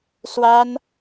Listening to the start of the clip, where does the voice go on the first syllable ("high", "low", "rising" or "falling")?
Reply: high